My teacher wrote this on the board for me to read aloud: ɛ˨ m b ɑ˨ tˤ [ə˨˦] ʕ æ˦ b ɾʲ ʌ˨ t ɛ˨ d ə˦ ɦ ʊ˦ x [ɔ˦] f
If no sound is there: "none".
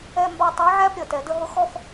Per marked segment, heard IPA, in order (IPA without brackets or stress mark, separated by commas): ɛ˨˦, ɔ˦